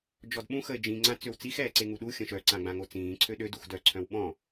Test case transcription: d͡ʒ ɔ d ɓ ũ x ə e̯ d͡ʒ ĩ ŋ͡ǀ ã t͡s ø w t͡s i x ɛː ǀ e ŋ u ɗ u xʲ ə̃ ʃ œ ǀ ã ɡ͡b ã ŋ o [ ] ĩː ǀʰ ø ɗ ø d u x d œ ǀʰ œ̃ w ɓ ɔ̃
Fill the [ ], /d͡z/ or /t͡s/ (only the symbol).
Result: t͡s